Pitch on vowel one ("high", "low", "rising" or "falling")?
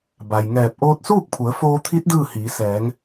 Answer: low